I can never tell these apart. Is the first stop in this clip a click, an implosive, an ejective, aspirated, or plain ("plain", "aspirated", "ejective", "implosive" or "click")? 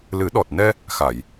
implosive